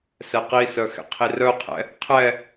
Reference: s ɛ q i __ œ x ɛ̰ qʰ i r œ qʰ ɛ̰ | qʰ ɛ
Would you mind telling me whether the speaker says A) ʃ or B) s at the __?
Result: B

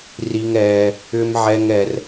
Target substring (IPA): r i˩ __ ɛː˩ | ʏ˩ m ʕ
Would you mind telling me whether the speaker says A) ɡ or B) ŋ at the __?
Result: B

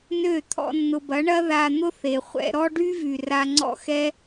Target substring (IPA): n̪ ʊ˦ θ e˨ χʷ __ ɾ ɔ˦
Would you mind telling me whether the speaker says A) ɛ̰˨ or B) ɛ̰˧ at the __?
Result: B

